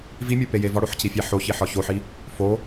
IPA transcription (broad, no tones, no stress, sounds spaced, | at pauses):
v i mʲ o p e j e v ɒ ɽ o ħ c i fʲ æ ħ o ç i ħ ɒ ç o ħ i | f o